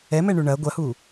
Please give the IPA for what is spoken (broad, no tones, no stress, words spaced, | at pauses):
ɛmɛɳu ɳɐ ɡʷɐhu